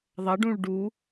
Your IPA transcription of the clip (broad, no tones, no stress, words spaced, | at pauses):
ðˤɐɖũɭ ɖu